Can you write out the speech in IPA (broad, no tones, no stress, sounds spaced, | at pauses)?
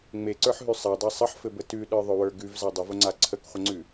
ŋ͡m e ǀ ə˞ ħ ɦ ʉ sˤ a dˤ a sˤ ə ħ f ɘ b ə t ʉ ɗ ə˞ ðˤ ʊ w ə˞ ɡ ʉ v z a dˤ ə v ʊ ŋ͡ǀ a ǀʰ ə k χʷ ə ŋ͡ǀ ʉ